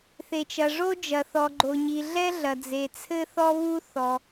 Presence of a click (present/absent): present